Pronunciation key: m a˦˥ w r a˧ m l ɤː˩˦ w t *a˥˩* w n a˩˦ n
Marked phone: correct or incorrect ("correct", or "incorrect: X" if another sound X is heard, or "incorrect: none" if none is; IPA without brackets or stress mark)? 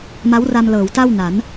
correct